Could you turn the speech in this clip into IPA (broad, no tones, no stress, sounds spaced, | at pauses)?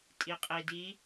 tʼ i qʼ i d i